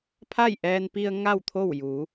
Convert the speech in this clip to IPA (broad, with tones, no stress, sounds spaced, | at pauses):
pʰ a˥˨ j ʔ ɛː˧ n p i˧ ə̯ ŋ a˥˨ w t̪ʰ o˥˨ w j u˩˧